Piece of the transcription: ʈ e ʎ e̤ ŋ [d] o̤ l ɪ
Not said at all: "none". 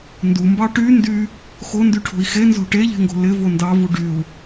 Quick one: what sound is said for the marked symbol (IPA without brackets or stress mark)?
ɡ